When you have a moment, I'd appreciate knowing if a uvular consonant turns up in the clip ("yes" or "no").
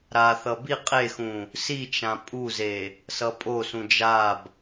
yes